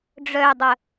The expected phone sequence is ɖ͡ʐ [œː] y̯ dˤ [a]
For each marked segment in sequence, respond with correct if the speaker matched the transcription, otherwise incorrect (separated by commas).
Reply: incorrect, incorrect